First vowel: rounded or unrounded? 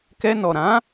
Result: unrounded